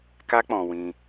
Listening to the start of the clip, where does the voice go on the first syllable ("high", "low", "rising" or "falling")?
high